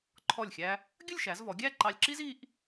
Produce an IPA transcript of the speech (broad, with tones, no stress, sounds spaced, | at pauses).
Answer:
ǃʰ ɔ˧˩ lʲ xʲ æ˧ | ɡʲ ə˥˧ lʲ ʃ æ˩˧ z v ɔ˩˧ ɡʲ æ˥˧ ǃ ɑ˧ lʲ ǁ i˥ z i˧ ʔ